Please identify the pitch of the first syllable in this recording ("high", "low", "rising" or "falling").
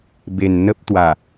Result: low